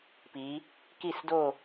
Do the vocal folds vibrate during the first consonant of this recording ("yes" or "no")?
no